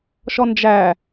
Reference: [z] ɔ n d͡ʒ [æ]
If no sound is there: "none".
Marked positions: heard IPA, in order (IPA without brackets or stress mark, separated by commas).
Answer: ʃ, æ